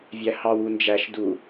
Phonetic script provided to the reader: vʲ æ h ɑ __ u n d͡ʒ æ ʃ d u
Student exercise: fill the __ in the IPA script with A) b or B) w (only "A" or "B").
B